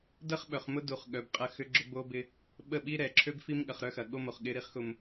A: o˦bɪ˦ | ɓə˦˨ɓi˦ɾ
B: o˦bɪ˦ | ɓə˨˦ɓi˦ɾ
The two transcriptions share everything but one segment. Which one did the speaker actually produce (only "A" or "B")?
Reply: A